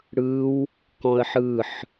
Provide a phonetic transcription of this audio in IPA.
ɽ ɯ w | k ɔ̃ ə̯ ħ ɯ ħ

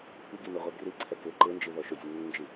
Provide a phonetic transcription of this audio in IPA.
p i ɡ i n ʊ ʁʷ e ɡ r i ǀʰ ɛ k ɪ ǃ ɪ n d͡ʒ i ð ɔ ʃ ʊ zʲ ʊ nː ɪ n d͡ʒ i

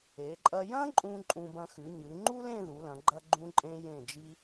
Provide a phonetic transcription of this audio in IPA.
e˩˧ ǃʼ ɐ˧ j ɐ̃˥ ǃʼ ũ˧ ǃʼ ũ˧ b ɐ̃˧ x ʉ˩˧ ɲ ɨ˩˧ ŋ͡ǃ u˥ l ẽ˥˧ ð u˩˧ l ɐ̃˩˧ ɡ͡ǃ ɐ˧ ɡ͡ǃ ũ˧ ǃʼ ẽ˧ j ẽ˧˩ d͡ʒ i˧

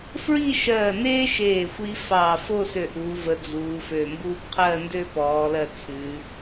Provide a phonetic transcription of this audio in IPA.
f ɹ i˥˧ ʃ ɜː˧˩ n eː˥ ʃ eː˧˩ xʷ i˧ f ɑː˧˩ f o˥˧ s ø˧˩ ʔ uː˩˧ v ə˩˧ d͡z uː˩˧ f ø˧˩ m b uː˥ p qʰ ɜ˥˧ n d ø˥˧ p ɔː˩˧ l ɜ˧˩ t͡sʰ ʉ˩˧

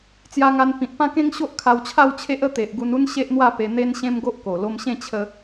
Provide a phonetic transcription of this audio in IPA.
t͡s j a˧ ŋ a˧ n p ĩ˨ t̚ p ã˥˧ k ẽ˦ ŋ ɕ o˦ ʔ kʰ a˧ w t͡ɕʰ a˥˧ w t͡ɕʰ e˦ ʔ ə˥˧ t̪ e˨ ʔ ɡ u˧ n u˦ n ɕ e˦ ʔ n̪ w a˥˧ p e˧ n̪ e˦ n ɕ ẽ˦ m ɡ o˦ ʔ k o˨˩ l o˧ m ɕ ẽ˥˧ t͡ɕʰ ə˧

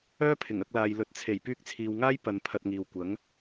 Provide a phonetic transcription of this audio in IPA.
œː˥ pʰ ɪ˨˩ ŋ ɐ˧ k̚ l aː˨ j l ɵ˨˥ t̚ t͡sʰ e˨˩ j p yː˧ k̚ t͡sʰ iː˨ w ŋ aː˥ j p ɐ˧ n pʰ ɐ˧ t̚ ŋ iː˨ w kʷ ɐ˨˥ ŋ

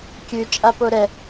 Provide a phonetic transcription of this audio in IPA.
kʲ ʉ t͡ʃʼ a p o ɾ ɛ

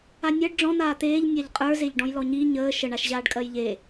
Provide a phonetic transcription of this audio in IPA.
a nʲ ɜ ɖ ɖ͡ʐ ɔ̃ n̪ aː t̪ eː ʎ nʲ a ʎ qʼ ə˞ z e ʎ ɖ ɔ̃ j l ɔ ɲ i ɲ əː ʃ ə ɳ a ʃ ʑ aː ɖ kʼ ɜ j ʎ e

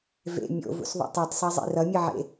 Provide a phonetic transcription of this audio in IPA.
v ḛ mʲ o̰ v ṵ s ðˤ ṵ tˤ i tˤ sˤ a zˤ ḛ r ʌ mʲ ɯ ʕ ḛ

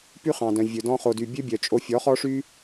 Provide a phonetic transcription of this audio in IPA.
p y˦ χ ɑ̃˨ d œ̃˨ vʲ ɵ˨ d ɔ̃˧ χ o˨ d y˨ bʲ ø˦ bʲ œ˨ t͡ʃʼ o˧ fʲ ɔ˨˦ χ ɔ˦ ʂ y˦

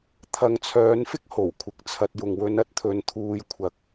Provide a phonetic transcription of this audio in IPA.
t̪ʰ ɐ˨˧ ŋ t͡sʰ œː˨˧ n f ɪ˥ k̚ h o˨˩ w kʷʰ ɪ˨˥ k̚ t͡sʰ ɐ˧ t̚ j ʊ˨ ŋ w ɵ˧ n ɐ˥ t̚ t̪ʰ ɵ˨˧ n t̪ʰ uː˧ j kʷʰ ɐ˧ k̚

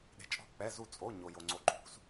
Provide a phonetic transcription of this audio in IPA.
ɗ e̤˧ t͡ʃʼ ɔ̤˥˩ k͡p ɛ˧˥˧ z u˥˩ t͡sʼ o˧˥˧ ɲ o˧ j o˧ ŋ͡ǀ o˧˥˧ ǃʰ ṳ˧˥˧ s

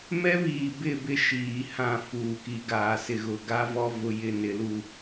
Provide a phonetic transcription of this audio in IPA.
m ɛ˦ β iː˨ b ɪ˦˨ b ɪ˦˨ ʃ iː˨ h ã˦˨ f uː˨ k i˨ ɡ aː˨ s ɪ˨ ɣ ʊ˨ ɡ a˦ v ɔ˦ v ʊ˦ j ɪ˦ n ɪ˨˦ l u˦

